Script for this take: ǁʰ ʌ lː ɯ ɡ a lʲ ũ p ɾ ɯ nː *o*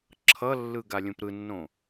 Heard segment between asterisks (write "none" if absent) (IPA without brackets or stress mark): õ